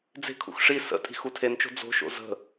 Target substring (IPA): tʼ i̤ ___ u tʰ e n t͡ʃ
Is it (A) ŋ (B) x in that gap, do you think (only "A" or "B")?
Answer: B